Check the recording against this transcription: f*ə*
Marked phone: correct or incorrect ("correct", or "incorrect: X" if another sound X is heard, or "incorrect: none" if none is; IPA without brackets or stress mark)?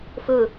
incorrect: ɵ